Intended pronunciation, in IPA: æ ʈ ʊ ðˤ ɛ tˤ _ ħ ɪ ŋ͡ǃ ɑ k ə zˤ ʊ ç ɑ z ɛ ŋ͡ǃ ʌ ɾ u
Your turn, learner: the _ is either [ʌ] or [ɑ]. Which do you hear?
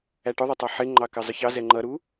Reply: ɑ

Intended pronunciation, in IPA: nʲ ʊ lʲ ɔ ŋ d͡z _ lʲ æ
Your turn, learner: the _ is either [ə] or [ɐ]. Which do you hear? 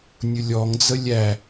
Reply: ə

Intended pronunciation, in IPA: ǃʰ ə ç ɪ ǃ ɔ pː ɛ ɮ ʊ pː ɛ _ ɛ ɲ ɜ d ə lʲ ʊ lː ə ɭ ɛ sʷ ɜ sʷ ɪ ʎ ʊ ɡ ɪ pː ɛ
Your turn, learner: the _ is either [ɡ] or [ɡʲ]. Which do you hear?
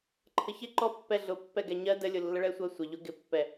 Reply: ɡ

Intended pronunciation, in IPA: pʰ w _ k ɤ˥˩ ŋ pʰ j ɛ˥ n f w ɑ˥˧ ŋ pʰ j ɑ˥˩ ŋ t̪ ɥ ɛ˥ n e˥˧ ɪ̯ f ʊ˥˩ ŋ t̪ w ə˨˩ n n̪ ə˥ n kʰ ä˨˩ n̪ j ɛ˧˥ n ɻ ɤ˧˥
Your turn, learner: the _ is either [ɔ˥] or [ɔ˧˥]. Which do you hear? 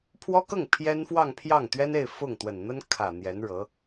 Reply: ɔ˥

